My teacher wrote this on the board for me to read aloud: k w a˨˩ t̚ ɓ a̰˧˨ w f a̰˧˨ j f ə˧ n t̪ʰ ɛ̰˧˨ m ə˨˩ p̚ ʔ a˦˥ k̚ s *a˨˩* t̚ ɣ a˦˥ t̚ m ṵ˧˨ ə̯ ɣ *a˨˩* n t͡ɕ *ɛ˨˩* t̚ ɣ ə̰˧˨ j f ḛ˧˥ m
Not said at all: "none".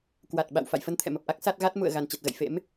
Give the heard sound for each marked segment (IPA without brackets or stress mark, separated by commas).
a˦˥, a˨˩, ɛ˨˩